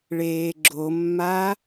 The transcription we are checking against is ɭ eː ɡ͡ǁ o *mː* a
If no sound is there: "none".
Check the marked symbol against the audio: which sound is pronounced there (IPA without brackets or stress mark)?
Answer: mː